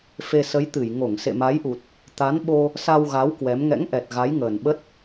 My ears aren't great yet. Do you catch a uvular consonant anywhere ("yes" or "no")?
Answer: no